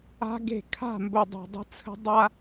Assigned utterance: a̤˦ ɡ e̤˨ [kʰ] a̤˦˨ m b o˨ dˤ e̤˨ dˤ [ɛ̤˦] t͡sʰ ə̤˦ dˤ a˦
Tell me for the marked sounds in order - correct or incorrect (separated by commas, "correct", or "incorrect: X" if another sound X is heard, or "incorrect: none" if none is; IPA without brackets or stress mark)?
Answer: correct, incorrect: ə̤˦